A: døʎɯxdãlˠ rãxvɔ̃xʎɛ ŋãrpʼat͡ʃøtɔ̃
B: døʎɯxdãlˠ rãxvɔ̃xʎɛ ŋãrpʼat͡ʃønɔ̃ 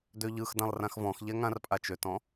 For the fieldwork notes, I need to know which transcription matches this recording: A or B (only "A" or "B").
A